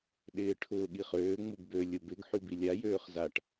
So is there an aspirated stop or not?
yes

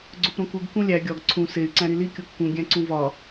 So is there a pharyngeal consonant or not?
no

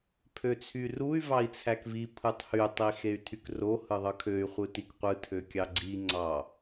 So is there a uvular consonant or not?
yes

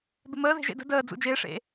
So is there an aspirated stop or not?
no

